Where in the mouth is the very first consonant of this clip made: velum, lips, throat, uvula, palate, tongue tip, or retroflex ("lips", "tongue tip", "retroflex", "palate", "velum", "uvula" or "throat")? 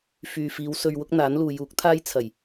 lips